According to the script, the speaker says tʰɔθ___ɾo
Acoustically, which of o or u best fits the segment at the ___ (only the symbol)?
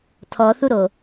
u